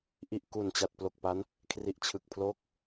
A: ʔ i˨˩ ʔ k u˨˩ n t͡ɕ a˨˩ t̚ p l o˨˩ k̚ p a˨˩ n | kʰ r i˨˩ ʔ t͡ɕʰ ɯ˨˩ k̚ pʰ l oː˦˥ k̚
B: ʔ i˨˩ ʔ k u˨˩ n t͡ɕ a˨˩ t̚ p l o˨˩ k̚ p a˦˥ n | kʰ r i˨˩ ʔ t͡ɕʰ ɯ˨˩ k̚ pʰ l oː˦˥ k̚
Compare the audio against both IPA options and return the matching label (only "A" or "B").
B